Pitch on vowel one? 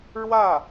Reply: falling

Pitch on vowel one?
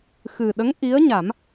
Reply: low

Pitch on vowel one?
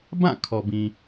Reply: falling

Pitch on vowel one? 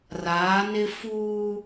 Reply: rising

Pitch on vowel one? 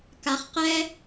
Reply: low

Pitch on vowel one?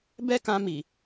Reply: high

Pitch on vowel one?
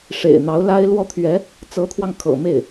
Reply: low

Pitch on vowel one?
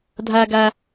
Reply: low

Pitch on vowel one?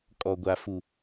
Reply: low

